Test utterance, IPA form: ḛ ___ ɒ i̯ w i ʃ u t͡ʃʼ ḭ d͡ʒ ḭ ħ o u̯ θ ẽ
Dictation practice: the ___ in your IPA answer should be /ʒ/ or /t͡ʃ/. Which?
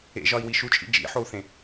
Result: ʒ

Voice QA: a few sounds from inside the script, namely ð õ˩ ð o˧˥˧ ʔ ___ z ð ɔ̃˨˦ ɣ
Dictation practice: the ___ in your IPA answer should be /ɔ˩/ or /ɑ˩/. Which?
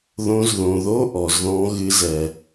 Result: ɔ˩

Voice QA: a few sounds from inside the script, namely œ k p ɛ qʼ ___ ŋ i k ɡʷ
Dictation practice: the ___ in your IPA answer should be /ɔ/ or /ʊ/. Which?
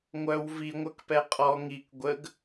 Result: ɔ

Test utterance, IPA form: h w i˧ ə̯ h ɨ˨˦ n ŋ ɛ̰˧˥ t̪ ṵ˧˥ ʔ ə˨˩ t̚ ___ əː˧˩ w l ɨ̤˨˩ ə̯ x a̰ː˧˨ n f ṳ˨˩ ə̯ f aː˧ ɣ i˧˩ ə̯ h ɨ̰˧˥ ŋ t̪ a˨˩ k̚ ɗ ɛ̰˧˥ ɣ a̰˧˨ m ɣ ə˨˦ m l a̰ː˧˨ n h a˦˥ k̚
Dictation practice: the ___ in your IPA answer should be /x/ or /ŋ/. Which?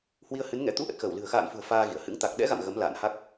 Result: x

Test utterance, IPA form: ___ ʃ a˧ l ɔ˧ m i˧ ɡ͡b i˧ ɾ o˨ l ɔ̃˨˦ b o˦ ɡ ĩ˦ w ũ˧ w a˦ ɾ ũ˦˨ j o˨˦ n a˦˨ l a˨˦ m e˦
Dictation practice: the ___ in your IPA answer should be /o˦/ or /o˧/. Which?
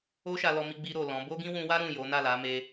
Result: o˦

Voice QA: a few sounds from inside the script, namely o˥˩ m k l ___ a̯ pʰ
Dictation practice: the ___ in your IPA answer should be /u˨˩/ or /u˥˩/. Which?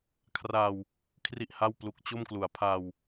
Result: u˨˩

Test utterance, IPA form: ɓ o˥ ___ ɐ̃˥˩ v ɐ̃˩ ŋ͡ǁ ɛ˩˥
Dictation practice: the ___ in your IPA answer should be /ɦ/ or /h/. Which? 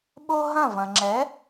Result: ɦ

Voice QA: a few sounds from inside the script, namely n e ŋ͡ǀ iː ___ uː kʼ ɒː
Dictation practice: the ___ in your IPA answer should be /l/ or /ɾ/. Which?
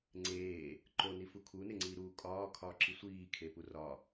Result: ɾ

